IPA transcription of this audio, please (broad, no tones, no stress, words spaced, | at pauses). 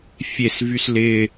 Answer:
fʲesvys lɪ